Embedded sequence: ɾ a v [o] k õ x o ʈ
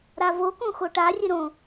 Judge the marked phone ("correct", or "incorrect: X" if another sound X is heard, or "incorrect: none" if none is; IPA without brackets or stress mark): correct